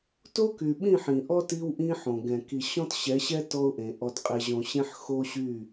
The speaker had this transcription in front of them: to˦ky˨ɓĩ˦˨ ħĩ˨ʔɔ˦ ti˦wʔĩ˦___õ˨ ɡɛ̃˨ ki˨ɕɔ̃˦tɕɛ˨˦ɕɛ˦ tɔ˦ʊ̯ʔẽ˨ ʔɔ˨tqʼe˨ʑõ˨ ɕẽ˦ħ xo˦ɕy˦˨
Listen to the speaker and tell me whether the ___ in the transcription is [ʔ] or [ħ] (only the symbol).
ħ